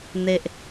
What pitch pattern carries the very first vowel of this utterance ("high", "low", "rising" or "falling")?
low